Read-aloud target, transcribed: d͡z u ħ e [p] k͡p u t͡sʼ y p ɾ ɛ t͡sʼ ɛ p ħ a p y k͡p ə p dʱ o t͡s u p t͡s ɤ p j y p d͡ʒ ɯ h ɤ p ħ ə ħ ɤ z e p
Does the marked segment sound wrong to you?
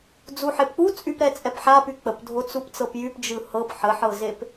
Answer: no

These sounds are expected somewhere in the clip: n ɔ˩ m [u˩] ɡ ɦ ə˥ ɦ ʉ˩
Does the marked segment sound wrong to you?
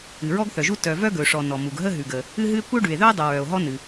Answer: no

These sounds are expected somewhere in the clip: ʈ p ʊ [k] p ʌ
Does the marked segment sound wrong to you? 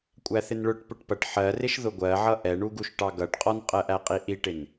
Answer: yes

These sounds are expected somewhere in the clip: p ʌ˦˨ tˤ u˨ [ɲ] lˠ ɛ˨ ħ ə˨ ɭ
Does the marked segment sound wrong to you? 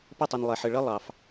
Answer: yes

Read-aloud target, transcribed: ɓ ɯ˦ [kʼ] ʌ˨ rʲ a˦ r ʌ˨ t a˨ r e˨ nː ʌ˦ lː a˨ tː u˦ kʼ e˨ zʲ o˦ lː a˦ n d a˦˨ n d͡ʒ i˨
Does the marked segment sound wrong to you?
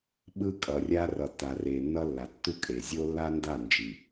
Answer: no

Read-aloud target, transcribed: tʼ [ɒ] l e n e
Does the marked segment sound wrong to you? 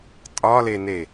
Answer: no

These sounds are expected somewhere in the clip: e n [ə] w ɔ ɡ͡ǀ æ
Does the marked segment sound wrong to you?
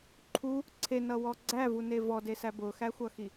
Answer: yes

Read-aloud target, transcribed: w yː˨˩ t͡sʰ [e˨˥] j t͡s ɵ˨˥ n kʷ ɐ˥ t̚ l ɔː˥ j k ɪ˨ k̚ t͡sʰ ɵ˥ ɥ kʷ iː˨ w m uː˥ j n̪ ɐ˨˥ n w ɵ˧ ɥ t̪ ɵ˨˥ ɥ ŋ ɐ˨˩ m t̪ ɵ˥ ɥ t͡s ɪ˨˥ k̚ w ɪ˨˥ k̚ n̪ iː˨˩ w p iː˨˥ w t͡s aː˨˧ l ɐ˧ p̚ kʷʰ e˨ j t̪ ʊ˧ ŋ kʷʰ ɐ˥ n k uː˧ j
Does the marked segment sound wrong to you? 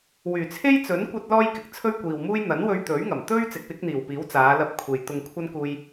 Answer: yes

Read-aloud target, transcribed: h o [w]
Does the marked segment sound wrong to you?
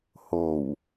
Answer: no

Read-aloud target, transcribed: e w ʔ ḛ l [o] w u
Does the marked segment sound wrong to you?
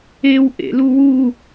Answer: yes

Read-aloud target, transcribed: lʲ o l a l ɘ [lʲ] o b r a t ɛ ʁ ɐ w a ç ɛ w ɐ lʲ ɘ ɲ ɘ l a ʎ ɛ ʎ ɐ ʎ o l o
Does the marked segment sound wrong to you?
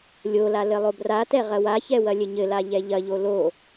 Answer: yes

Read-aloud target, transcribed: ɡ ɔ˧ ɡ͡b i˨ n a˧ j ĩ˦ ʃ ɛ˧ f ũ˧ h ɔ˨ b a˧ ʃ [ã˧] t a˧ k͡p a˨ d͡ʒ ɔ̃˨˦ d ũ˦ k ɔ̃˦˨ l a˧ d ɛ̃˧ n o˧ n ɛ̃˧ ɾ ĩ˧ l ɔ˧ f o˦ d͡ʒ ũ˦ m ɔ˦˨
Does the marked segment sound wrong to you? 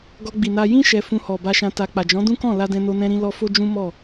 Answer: no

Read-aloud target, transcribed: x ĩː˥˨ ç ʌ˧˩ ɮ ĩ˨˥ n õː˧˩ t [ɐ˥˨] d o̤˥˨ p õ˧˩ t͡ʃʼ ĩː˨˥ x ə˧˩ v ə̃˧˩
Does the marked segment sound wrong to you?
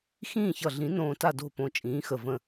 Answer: yes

